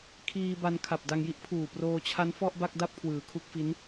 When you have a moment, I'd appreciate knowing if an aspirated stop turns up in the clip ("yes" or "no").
yes